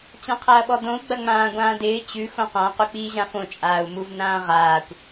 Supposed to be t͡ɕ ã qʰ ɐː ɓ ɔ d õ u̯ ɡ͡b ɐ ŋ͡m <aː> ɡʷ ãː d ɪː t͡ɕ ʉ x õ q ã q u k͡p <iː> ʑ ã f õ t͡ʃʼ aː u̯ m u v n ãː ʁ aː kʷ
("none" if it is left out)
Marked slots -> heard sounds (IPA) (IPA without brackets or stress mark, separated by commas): ãː, iː